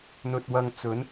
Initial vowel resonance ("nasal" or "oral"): oral